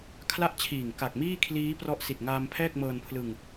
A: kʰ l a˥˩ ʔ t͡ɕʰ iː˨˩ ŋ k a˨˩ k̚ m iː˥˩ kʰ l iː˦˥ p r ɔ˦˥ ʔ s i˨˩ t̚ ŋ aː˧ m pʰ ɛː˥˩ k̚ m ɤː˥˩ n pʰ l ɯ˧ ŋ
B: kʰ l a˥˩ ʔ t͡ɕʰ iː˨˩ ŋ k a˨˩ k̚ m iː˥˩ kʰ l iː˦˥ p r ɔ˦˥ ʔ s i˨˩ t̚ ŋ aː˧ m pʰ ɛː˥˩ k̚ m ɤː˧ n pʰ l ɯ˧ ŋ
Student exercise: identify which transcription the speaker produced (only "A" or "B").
B